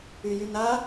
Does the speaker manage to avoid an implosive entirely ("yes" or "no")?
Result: yes